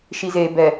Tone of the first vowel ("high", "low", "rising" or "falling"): low